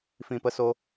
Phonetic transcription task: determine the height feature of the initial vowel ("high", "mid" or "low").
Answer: high